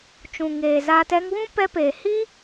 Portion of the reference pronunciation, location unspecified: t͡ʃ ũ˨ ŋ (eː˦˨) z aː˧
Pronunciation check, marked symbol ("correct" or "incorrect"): incorrect